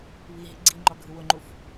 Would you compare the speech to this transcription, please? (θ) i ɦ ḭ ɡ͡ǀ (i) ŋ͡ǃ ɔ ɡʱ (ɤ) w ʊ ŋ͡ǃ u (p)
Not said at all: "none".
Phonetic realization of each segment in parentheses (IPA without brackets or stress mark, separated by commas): β, i, ɯ, f